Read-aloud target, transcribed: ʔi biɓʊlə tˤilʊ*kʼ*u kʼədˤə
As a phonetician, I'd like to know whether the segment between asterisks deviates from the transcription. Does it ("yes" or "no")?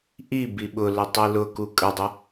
yes